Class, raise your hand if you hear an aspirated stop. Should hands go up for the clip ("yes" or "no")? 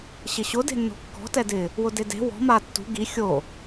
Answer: no